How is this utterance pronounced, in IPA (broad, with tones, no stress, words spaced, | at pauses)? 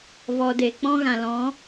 vɔ˨de˨k͡pɔ̃˦ ɣã˨lɔ̃˨˦